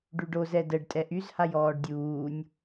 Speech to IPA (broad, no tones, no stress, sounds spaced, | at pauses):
ɖ y ɖ o z ɛ d ə ɖ tʼ ɛ ʔ y z h a j ɔː ɖ dʲ uː nʲ